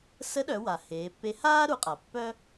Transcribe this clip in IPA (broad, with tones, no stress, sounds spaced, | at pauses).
s ə˧˥ ɗ œ˩˧ w a˩ h eː˩˧ pː e˧˥ h aː˥ ɾ u˩˧ qʼ a˩ pː œ˥